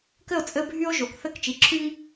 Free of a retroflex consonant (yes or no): yes